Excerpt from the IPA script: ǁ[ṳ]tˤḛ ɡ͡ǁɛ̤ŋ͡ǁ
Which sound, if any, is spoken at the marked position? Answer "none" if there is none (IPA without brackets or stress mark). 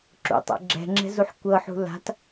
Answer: ṵ